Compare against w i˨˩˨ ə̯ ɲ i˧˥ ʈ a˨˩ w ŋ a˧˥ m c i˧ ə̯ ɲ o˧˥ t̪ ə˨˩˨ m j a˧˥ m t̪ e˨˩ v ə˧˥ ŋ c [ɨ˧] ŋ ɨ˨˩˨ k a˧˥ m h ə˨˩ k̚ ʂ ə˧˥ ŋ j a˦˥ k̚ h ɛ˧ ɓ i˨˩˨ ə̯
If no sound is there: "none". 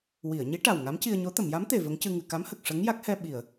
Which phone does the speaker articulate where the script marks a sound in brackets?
ɨ˧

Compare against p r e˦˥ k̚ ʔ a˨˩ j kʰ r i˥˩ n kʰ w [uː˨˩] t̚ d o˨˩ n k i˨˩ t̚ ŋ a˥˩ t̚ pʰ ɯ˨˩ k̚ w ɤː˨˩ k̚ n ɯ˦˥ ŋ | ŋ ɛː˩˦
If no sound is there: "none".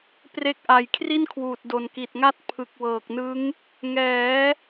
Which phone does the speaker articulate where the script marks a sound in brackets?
uː˨˩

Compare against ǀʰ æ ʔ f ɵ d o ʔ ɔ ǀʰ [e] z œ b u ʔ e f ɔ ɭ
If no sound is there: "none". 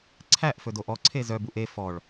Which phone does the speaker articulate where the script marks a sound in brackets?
e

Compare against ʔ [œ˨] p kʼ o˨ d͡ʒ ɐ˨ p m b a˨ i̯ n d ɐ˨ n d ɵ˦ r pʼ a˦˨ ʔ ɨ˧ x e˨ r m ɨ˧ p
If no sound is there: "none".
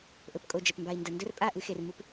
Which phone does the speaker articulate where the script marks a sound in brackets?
ɵ˨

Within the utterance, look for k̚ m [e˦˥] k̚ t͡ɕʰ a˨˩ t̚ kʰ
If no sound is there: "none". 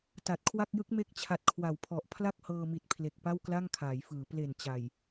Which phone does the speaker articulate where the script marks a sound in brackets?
e˦˥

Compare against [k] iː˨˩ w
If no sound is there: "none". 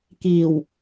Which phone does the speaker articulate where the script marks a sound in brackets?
k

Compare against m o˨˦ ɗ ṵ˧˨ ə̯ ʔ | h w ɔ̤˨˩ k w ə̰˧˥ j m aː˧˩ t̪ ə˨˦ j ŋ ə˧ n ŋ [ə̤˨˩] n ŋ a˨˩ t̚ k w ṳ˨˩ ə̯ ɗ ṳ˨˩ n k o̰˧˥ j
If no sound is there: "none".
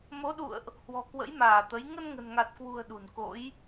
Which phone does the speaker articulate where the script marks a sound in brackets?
ə̤˨˩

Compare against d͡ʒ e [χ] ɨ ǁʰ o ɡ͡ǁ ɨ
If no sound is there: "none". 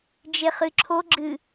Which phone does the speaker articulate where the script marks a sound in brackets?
χ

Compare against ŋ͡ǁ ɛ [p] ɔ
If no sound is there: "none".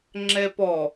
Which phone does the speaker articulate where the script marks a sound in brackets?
p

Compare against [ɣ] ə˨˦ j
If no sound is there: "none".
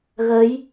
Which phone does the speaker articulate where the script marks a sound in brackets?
ɣ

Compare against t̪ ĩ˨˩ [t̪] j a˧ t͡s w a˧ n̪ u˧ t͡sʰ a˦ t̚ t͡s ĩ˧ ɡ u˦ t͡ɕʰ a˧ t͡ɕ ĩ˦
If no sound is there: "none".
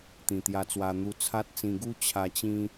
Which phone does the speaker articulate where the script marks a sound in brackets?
t̪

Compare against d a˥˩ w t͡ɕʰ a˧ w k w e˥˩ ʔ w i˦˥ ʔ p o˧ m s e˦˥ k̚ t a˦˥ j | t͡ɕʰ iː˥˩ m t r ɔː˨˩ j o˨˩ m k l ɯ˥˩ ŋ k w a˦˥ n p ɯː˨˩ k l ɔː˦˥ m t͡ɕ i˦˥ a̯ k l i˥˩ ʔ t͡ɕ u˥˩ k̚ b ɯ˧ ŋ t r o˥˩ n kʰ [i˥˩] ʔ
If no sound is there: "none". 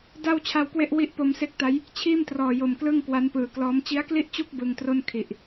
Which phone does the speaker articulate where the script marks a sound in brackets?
i˨˩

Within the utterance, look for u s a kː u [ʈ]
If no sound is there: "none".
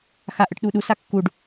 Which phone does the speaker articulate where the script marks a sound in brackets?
ɖ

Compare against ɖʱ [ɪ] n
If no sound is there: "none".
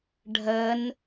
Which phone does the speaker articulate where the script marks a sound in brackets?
ə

